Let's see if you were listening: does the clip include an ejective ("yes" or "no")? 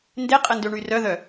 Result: yes